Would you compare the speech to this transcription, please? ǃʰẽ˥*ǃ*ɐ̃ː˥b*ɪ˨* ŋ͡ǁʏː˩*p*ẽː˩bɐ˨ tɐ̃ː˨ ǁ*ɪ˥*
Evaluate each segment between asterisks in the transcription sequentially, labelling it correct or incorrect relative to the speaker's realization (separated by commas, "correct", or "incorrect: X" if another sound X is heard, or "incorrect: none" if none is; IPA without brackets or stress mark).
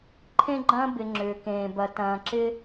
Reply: incorrect: ɡ͡ǃ, correct, incorrect: k, correct